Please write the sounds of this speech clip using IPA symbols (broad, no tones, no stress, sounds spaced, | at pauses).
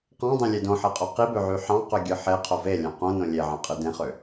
q ɑ̃ dˤ ẽ lʲ e d õ ħ e qʼ o q i b ø ʕ y ħ ɑ̃ q ø ɡʲ ɯ ħ e qʰ o v e lʲ ɑ̃ q õ n õ lʲ e ʕ ɑ̃ qʼ ɯ d ẽ χ ø